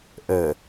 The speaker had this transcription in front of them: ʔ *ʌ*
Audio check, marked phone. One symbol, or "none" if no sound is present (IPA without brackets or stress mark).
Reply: ə